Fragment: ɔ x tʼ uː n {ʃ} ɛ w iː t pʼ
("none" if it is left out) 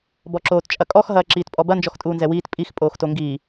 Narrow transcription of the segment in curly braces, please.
z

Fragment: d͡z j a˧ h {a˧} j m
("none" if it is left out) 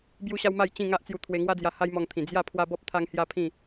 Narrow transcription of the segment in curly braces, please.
a˦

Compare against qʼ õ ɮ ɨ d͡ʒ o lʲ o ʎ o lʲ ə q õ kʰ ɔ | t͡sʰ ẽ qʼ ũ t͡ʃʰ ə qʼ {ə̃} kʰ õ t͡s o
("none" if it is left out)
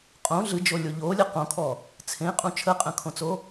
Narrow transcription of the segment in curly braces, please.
ə̃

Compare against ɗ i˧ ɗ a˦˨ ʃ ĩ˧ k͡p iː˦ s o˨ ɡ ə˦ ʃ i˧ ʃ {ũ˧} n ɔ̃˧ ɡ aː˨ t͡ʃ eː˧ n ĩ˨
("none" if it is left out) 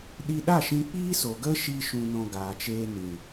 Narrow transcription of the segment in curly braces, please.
ũ˧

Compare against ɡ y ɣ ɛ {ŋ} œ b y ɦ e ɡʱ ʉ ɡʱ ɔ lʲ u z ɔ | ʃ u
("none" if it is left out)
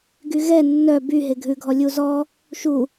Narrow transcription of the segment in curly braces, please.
nː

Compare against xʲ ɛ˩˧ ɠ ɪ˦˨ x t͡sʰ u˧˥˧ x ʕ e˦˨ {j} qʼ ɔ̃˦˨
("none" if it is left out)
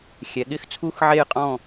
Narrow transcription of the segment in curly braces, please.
j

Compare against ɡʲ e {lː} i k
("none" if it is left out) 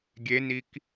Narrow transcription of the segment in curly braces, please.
n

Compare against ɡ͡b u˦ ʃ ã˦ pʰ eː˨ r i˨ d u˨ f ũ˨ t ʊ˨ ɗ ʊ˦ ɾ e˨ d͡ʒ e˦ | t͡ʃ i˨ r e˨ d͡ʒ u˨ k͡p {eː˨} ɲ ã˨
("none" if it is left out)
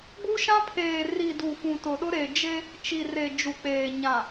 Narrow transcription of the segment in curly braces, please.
eː˨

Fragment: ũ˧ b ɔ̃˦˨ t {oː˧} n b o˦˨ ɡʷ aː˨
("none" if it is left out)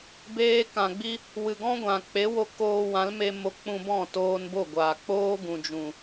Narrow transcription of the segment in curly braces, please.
oː˧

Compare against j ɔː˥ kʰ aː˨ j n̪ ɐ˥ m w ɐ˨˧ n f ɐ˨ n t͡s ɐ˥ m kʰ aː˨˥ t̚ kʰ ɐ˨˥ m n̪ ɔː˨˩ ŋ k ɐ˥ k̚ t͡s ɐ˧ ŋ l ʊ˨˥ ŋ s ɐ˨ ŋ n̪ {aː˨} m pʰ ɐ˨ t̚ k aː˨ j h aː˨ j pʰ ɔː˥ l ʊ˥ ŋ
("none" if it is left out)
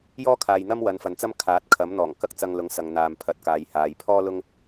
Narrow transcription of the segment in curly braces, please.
aː˨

